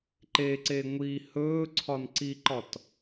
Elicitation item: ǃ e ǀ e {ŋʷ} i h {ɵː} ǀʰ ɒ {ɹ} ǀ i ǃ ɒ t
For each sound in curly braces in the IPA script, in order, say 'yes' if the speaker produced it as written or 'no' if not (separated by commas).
yes, yes, no